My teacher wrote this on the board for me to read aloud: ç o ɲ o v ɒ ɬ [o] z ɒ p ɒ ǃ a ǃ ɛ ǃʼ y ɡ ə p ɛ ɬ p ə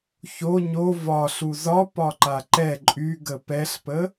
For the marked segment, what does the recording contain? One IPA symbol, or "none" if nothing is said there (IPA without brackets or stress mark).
u